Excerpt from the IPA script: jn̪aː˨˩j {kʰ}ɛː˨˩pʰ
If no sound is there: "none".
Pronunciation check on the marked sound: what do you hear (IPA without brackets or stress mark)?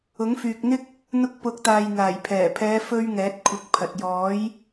pʰ